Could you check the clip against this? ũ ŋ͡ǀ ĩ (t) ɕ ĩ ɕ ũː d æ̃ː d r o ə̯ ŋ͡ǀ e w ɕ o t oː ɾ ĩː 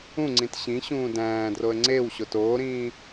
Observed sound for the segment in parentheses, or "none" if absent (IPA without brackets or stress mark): t